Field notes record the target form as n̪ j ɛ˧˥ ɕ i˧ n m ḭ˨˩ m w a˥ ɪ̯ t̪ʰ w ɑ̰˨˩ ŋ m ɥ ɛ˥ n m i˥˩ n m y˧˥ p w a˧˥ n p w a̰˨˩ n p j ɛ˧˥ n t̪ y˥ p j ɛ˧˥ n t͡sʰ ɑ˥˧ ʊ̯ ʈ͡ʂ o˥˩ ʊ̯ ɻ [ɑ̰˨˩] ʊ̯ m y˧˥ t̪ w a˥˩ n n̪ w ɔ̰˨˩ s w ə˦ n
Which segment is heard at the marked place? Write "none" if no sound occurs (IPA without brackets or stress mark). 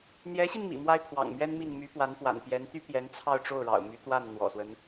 ɑ̰˨˩